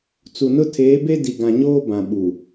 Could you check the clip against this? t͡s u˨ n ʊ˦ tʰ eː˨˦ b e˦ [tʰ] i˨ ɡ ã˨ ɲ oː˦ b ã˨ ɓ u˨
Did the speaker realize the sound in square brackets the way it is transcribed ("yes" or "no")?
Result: no